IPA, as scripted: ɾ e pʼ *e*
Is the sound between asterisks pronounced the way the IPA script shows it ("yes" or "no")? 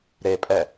no